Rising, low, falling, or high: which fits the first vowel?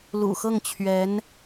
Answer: low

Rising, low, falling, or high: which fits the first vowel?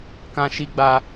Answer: high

